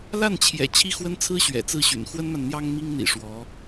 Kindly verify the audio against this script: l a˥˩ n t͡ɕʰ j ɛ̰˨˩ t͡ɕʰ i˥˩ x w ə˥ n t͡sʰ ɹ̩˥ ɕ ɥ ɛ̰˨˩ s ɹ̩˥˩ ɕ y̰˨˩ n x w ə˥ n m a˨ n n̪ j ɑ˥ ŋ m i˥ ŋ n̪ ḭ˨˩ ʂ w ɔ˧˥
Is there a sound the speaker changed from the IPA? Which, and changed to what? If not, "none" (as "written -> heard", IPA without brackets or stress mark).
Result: s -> t͡s